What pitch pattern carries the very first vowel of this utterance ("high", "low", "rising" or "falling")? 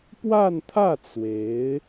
falling